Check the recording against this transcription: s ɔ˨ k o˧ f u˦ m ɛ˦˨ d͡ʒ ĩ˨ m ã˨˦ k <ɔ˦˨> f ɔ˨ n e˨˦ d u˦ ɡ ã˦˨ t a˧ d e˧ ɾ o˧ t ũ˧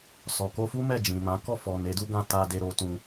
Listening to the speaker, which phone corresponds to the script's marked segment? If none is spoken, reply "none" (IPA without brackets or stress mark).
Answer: ɔ˦˨